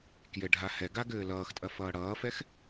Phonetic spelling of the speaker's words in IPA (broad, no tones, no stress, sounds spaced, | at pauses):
k j ɘ ɖʱ a h ɛ ɡ a ɡ ɘː l ʌː x tʼ ɐ f ʌː ɽ ʌː f ɛ x